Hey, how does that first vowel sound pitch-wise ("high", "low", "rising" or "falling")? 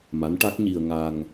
rising